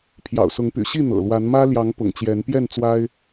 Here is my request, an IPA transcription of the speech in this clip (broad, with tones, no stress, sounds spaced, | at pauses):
pʰ j ɑ̰˨˩ ʊ̯ s ʊ˨˦ ŋ p y̰˨˩ ɕ i˥˨ n̪ ɤ̰˨˩ l w a˨˦ n m ä˦ l j ɑ˨˦ ŋ p ʊ̰˨˩ ŋ t͡ɕ j ɛ˨˦ n p j ɛ˥˨ n t͡s w a˦ ɪ̯